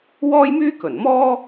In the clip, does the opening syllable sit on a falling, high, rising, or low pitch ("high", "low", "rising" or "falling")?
high